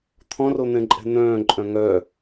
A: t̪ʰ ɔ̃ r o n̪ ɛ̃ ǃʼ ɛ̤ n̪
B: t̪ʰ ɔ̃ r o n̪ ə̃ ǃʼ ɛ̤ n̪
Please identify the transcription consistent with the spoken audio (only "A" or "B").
A